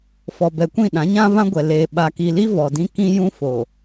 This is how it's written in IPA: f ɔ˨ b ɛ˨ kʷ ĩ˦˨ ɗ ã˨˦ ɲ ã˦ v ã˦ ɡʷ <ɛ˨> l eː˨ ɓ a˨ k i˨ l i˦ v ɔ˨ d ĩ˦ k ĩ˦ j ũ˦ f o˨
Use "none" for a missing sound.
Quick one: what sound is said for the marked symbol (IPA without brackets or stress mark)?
ɛ˨